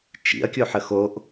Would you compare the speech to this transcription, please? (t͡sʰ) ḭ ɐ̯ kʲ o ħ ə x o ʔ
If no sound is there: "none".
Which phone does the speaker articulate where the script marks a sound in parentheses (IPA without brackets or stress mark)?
t͡ʃ